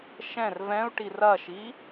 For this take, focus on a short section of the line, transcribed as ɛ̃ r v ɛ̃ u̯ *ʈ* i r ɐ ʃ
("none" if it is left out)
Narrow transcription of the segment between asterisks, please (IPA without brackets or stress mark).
ʈ